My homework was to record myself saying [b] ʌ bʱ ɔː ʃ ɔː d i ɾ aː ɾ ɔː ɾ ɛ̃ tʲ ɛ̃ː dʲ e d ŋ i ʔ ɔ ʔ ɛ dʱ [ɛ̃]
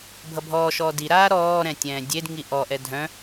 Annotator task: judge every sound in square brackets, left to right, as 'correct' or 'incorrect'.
incorrect, incorrect

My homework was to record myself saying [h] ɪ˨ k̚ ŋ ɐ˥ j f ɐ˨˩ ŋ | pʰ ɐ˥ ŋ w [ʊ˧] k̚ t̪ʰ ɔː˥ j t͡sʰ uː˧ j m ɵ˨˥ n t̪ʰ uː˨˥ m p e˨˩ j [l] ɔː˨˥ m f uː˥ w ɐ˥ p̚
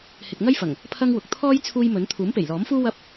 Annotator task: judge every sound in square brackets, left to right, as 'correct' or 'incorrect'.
correct, incorrect, correct

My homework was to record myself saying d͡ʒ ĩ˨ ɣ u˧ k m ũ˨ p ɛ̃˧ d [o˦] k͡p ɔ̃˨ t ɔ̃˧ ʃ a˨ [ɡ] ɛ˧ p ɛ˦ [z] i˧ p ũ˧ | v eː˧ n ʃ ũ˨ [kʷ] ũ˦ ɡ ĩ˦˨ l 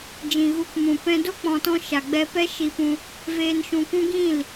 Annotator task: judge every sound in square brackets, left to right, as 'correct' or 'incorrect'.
correct, incorrect, incorrect, correct

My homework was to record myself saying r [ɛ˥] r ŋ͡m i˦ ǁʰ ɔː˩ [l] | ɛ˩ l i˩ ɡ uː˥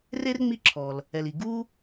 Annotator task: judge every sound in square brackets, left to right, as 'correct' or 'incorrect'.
incorrect, correct

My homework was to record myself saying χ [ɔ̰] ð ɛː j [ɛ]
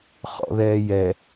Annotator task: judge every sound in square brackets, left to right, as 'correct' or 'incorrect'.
correct, correct

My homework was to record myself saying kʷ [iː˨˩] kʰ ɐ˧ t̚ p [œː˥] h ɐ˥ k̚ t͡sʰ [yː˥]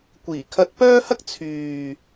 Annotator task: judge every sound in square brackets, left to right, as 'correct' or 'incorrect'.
correct, correct, incorrect

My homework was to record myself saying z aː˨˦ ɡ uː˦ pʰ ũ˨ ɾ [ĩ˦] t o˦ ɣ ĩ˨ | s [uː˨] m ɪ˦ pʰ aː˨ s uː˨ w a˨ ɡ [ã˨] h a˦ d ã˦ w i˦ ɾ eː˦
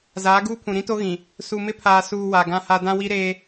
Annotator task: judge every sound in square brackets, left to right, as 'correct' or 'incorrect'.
correct, incorrect, incorrect

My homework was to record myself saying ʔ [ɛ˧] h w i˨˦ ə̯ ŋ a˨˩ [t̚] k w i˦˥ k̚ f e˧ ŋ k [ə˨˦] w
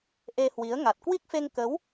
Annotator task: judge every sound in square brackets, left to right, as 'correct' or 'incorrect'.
incorrect, correct, correct

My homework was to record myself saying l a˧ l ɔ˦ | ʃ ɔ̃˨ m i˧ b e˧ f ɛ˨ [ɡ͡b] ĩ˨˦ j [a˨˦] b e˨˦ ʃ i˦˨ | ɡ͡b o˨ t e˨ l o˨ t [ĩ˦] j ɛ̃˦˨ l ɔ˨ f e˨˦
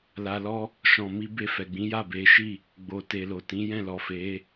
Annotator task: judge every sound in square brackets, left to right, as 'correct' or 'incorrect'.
correct, incorrect, incorrect

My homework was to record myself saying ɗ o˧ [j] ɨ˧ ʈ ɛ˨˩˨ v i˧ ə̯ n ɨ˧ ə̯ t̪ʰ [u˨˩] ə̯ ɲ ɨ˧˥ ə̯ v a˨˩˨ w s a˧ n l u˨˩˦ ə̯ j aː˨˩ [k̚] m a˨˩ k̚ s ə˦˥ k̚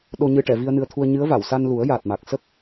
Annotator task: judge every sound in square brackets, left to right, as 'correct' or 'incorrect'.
incorrect, incorrect, incorrect

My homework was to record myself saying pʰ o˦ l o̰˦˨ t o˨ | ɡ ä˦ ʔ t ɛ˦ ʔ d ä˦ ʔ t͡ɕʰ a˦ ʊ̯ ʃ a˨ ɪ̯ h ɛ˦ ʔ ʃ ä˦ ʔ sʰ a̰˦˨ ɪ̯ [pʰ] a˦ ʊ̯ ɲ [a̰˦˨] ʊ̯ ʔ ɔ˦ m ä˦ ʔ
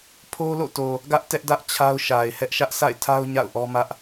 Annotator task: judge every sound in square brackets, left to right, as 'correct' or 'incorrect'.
incorrect, correct

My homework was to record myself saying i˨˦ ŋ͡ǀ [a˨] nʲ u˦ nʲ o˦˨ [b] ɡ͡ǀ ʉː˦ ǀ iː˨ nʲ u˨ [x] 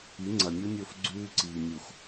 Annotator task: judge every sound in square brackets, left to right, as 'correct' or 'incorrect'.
incorrect, incorrect, correct

